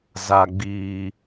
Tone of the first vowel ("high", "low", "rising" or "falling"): low